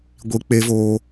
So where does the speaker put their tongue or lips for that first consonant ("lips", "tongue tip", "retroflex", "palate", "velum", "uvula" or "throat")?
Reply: velum